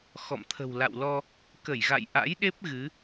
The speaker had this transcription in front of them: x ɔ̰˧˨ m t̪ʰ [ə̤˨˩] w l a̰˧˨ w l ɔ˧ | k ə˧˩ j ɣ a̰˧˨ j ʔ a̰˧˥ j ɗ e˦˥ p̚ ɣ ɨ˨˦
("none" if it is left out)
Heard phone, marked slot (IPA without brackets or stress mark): ə̤˨˩